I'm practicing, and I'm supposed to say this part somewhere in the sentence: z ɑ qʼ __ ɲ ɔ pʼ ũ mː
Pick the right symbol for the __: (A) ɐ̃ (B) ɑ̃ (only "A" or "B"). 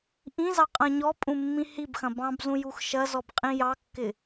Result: A